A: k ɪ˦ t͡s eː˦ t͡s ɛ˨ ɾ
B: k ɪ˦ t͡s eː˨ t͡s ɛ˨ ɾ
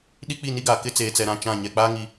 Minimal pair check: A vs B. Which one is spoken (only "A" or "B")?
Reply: B